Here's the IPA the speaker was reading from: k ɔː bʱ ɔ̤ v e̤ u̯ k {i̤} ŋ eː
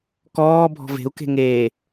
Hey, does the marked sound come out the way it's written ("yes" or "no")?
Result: no